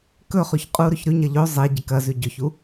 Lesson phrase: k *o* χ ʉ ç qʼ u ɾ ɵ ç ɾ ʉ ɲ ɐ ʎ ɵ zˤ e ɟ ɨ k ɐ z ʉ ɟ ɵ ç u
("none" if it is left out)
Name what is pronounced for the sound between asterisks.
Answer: ɵ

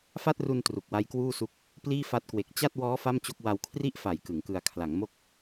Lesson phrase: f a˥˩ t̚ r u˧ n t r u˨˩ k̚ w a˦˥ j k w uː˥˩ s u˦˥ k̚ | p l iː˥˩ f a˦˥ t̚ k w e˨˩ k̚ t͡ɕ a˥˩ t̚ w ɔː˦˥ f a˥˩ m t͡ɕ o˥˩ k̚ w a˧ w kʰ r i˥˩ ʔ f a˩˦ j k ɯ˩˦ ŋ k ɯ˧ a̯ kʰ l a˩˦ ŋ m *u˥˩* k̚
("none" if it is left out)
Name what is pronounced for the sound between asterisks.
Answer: o˥˩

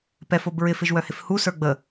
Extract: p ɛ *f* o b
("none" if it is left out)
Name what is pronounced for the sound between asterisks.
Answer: f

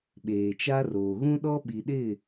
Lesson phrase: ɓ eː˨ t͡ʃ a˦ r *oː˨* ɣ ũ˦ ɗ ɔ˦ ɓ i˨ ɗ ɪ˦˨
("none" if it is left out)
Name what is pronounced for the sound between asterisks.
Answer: oː˨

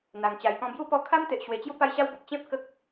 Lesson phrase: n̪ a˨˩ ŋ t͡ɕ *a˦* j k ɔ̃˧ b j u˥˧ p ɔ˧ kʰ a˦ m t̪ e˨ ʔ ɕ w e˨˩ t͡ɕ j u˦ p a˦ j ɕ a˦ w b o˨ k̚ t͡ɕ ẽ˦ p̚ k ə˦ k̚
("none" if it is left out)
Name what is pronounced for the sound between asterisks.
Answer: a˨˩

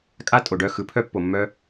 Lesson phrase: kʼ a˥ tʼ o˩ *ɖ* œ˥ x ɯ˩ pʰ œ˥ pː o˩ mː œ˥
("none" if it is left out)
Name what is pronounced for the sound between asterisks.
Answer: ɖ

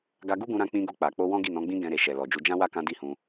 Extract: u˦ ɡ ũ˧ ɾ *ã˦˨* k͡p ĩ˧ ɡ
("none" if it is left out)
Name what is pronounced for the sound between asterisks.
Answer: ã˧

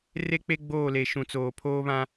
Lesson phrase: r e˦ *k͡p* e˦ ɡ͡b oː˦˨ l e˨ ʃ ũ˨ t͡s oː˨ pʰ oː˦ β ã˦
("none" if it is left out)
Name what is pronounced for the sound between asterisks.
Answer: k͡p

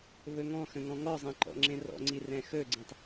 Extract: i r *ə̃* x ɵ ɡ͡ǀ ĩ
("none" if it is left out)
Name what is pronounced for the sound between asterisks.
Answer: ɛ̃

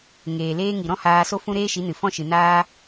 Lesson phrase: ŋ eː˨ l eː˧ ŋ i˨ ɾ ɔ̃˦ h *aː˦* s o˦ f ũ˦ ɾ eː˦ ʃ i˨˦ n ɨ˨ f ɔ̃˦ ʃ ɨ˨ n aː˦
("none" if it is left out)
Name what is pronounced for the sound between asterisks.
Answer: aː˧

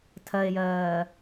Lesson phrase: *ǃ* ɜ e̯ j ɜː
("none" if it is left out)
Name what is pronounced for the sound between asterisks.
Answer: tʰ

